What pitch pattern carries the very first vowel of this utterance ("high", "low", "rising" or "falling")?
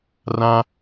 high